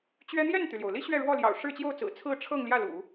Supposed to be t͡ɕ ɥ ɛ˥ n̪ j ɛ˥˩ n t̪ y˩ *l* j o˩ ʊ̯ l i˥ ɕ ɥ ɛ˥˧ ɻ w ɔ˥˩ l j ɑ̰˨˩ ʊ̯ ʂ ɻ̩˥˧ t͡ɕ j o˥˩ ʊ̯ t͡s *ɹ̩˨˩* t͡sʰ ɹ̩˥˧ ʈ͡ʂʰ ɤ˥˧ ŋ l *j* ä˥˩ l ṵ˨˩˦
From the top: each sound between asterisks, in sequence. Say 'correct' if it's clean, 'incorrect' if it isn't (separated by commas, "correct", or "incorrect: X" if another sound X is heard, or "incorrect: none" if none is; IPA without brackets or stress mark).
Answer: correct, correct, correct